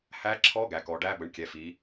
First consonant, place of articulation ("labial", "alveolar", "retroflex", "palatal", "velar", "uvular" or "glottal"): glottal